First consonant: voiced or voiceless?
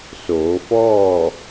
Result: voiceless